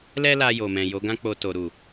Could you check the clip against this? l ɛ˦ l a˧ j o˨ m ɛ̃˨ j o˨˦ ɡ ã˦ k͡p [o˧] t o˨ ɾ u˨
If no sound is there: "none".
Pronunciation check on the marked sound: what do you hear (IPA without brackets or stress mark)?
o˧